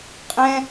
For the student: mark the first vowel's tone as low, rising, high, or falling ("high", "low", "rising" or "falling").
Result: high